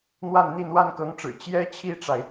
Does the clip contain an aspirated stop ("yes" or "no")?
yes